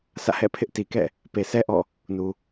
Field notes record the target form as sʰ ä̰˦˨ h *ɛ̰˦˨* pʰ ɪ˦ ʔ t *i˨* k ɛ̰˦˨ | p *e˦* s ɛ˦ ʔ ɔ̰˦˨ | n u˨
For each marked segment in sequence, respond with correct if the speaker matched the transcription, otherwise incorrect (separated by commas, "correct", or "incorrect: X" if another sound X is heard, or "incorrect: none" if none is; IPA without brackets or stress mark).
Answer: correct, correct, incorrect: e˨